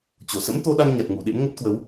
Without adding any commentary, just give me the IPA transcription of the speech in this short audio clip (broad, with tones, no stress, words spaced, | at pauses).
t͡ɕo˧˩ sə̰˧˥mt̪o˧ɗa˧ŋ ɲa˨˩t̚ŋu˧˩ɗḛ˧˥m ŋə˦˥t̚kwə˨˦w